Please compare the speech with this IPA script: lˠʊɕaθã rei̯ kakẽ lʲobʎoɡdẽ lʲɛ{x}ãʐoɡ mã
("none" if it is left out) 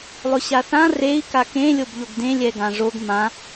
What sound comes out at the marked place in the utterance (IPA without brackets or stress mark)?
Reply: ɡ